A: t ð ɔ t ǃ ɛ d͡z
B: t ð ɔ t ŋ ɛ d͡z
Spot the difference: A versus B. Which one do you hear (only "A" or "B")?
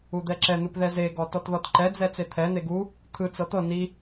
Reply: A